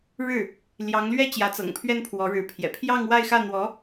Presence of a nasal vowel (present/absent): absent